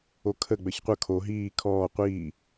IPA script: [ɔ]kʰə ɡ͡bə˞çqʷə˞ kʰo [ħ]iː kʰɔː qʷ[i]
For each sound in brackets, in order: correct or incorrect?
incorrect, incorrect, incorrect

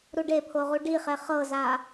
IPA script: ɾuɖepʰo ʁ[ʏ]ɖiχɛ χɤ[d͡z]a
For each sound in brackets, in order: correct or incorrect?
incorrect, incorrect

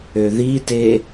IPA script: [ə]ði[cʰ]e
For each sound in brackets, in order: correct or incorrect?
incorrect, incorrect

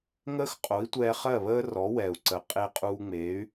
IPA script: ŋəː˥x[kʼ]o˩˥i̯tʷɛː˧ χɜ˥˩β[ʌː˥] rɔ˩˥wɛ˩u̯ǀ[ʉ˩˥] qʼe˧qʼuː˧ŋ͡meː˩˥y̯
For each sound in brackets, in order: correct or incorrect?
incorrect, incorrect, incorrect

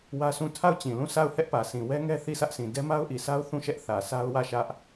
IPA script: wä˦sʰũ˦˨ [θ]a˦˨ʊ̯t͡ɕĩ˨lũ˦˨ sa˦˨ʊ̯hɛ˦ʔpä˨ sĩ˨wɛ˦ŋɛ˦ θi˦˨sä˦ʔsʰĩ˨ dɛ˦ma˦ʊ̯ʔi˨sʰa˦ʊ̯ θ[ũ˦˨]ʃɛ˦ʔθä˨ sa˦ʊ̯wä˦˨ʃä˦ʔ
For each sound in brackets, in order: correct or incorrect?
incorrect, correct

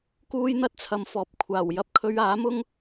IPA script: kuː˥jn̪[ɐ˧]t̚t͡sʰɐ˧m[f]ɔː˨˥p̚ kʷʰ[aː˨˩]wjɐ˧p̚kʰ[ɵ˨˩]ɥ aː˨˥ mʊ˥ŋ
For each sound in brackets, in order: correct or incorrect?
incorrect, correct, correct, incorrect

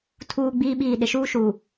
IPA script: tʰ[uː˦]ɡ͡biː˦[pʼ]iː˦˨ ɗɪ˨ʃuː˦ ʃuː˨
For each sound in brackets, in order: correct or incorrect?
correct, incorrect

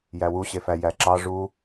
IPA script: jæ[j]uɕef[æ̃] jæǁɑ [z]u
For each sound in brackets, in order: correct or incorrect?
incorrect, incorrect, incorrect

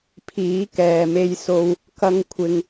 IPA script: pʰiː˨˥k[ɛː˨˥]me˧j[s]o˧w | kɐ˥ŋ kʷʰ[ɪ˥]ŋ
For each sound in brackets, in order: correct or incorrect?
incorrect, correct, correct

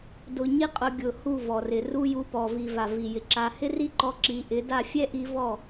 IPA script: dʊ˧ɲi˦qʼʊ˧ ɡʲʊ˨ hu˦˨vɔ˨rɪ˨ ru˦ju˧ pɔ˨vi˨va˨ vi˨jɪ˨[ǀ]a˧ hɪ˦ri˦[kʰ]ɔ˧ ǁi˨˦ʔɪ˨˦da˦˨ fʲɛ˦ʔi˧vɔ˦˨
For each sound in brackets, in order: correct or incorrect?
incorrect, incorrect

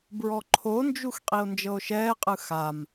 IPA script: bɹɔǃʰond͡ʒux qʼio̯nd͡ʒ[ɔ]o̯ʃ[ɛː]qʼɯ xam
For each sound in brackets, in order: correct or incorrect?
incorrect, correct

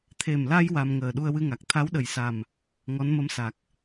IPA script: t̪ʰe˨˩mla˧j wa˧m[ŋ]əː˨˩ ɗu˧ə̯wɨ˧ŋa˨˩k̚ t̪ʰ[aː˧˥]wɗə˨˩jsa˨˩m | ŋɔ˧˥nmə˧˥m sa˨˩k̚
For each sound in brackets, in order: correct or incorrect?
correct, incorrect

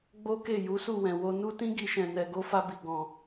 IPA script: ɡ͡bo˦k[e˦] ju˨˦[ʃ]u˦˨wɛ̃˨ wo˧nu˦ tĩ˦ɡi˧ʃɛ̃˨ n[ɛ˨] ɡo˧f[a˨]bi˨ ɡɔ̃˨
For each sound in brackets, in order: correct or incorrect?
incorrect, incorrect, correct, incorrect

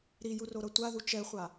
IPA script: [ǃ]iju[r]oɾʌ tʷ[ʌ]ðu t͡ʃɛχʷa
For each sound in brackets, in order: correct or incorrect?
incorrect, correct, incorrect

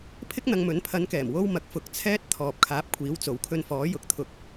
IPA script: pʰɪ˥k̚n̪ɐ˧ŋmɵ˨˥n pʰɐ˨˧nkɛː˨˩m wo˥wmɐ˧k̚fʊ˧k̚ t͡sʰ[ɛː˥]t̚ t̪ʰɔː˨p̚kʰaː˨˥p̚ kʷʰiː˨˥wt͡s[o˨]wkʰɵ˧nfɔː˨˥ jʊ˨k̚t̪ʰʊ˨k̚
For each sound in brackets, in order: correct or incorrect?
correct, correct

